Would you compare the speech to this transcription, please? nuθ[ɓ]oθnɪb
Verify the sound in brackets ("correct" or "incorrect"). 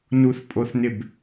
incorrect